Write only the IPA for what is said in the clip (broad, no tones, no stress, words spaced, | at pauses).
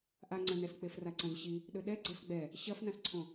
ʔaŋ͡ǀɐ̃nɛsk͡pef raǀɐ̃zɕi | ɗɵɗɛ ɡ͡ǀɐsɡ͡bɛ | ɕɐfnãsǀʰõ